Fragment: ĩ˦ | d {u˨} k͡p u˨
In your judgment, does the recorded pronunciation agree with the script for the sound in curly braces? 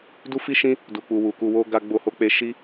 yes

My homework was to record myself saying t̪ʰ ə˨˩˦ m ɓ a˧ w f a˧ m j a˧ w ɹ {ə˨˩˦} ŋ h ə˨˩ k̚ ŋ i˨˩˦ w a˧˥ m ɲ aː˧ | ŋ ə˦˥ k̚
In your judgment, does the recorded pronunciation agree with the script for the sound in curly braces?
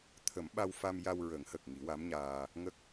yes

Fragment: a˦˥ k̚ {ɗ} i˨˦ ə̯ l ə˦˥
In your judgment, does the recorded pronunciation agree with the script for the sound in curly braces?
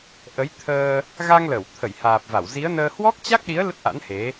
yes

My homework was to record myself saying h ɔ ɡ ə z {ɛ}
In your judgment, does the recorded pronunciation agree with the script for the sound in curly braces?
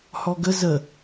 no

